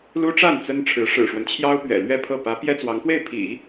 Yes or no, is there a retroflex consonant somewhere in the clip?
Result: yes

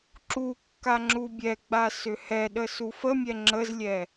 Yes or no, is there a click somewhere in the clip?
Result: yes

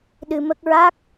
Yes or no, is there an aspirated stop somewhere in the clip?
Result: no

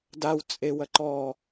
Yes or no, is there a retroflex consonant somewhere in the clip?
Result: no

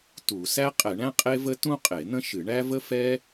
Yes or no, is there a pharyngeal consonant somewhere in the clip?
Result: no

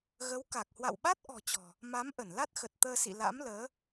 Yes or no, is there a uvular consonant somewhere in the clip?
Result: no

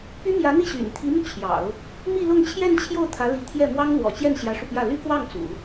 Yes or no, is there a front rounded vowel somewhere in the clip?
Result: yes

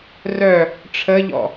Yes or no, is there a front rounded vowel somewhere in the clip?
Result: yes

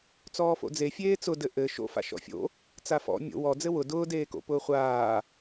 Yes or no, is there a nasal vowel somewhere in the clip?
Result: no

